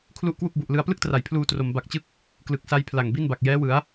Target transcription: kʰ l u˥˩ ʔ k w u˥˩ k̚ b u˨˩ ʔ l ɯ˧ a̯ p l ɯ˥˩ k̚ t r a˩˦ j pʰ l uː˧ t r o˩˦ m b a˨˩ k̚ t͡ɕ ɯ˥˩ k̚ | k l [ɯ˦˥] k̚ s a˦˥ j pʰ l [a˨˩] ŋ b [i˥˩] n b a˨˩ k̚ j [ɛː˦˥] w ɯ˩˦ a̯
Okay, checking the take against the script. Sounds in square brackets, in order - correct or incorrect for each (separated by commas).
incorrect, correct, correct, correct